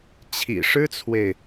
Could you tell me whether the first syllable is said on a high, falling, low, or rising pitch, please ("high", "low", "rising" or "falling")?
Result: low